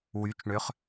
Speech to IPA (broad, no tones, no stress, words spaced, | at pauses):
wyt͡ʃɳøχ